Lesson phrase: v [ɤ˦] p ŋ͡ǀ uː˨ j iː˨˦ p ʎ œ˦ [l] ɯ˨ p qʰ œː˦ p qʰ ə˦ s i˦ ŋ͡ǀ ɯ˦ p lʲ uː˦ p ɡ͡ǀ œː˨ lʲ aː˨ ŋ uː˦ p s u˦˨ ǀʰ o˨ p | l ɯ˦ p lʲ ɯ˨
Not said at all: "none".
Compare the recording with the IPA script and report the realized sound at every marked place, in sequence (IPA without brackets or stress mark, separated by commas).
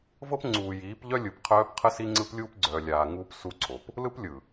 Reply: ɤ˦, lʲ